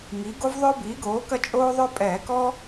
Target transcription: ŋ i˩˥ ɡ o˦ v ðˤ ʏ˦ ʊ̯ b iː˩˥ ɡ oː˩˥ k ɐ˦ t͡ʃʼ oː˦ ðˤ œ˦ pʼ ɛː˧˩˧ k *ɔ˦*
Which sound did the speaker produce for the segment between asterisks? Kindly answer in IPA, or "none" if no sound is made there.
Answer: ɔ˦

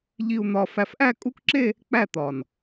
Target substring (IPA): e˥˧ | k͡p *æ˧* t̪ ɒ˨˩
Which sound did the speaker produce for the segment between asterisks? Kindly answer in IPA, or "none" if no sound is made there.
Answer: æ˥˩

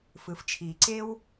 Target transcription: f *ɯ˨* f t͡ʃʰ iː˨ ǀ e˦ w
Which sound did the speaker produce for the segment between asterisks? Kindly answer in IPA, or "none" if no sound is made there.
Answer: ɯ˨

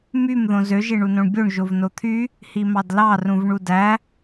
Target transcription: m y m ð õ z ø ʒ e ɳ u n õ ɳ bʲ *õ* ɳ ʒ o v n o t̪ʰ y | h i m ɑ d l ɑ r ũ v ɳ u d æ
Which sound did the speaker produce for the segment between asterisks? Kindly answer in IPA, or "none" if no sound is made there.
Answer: o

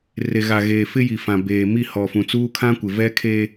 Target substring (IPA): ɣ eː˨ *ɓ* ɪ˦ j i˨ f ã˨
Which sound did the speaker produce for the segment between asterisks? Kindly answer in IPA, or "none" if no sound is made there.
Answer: f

